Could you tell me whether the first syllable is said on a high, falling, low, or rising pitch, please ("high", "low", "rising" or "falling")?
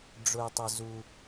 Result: low